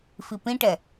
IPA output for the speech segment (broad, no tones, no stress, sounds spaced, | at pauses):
f i p ĩ ʈ ɛ